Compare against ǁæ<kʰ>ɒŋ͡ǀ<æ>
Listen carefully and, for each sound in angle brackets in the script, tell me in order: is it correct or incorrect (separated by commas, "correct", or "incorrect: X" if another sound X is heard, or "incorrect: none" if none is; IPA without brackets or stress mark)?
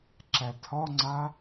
incorrect: tʰ, incorrect: a